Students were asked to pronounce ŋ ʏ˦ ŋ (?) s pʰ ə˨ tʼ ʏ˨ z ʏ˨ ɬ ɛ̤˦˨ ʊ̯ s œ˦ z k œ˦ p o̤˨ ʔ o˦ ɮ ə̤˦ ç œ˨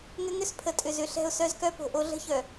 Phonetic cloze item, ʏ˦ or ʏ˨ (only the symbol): ʏ˦